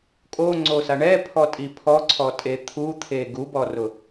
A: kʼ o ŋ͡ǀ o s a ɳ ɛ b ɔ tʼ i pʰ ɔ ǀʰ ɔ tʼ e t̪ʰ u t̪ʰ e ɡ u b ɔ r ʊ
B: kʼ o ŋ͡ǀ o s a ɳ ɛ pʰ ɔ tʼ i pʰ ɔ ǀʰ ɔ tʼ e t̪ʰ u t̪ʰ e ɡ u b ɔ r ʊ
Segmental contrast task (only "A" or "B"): B